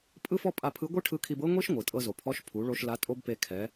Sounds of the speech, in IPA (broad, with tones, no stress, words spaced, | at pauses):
pʼɯ˥fɔ˥pʼa˧ pʰɯ˧˥ɡʷɯ˥ ʈʰɯ˧˥kʰi˧bɤ˥ŋʷi˥ʃ ŋʷɯ˩ tʼɤ˧zo˩pʰɔ˧˥ʃ pʰu˩˧ɭo˧ʃ la˧˥tʼo˥bpe˧ kʰɛ˩˧